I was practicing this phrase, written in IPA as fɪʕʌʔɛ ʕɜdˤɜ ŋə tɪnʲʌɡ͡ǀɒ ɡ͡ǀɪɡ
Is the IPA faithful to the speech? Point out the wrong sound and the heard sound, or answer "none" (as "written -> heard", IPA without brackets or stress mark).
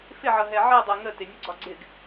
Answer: ʔ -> ɦ